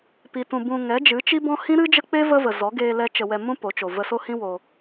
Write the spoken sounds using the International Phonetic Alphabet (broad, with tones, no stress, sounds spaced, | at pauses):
p i˨ t ũ˨ b ũ˨ ŋ ɛ˨˦ d͡ʒ ɨ˨˦ t͡ʃ i˦ b ɔ̃˦ h ĩ˦ ɾ ɨ˦ d͡ʒ ə˦ k͡p e˦ v ə˦ v ə˨ z ɔ˨˦ ɡ eː˧ l ɛ˧ t͡ʃ ə˧ w ɛ˧ m ũ˦ p o˨˦ t͡ʃ o˨ v ə˧ s o˦ h ĩ˦ w o˧